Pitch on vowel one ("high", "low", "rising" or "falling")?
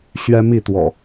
high